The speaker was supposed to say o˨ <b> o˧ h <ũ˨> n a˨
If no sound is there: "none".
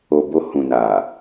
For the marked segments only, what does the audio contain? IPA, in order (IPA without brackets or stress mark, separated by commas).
b, ũ˨